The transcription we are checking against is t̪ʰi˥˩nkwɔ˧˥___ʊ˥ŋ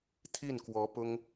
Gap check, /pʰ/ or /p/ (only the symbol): p